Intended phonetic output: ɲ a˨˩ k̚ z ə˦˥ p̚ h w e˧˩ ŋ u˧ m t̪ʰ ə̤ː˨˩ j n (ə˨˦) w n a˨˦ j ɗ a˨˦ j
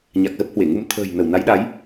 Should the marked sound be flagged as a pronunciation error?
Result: yes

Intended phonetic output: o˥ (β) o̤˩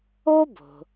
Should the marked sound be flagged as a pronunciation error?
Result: yes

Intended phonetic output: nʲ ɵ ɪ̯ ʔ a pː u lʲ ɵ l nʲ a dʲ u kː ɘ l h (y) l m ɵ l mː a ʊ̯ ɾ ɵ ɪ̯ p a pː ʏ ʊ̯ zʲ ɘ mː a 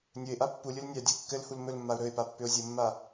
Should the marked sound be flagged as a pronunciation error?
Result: yes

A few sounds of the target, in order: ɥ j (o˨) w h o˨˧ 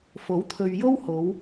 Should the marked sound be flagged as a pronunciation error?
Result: yes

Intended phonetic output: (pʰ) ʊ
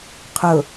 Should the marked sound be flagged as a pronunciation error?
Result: yes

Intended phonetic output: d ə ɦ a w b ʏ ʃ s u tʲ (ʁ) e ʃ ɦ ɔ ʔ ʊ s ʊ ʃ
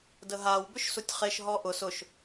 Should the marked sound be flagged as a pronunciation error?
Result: yes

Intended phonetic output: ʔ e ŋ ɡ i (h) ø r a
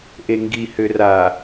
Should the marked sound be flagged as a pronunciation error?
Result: no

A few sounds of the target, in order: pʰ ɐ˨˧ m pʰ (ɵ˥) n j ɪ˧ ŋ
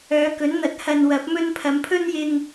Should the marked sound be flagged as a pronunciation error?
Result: no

